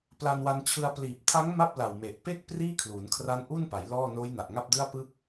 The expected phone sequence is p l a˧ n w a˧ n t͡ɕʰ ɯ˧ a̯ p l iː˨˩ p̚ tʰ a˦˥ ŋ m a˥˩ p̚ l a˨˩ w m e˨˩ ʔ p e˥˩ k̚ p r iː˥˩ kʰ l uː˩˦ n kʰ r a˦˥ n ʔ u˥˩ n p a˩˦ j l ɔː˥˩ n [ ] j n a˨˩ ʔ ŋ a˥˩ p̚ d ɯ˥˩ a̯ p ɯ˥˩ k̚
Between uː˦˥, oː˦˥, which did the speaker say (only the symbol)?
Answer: oː˦˥